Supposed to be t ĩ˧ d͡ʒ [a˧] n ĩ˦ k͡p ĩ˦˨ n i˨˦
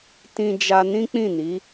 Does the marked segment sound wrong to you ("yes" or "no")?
no